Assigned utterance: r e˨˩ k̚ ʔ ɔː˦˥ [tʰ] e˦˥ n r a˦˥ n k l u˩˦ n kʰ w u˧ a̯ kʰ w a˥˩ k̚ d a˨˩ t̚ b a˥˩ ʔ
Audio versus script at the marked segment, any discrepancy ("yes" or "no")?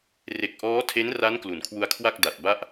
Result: no